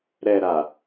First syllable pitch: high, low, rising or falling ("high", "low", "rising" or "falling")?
low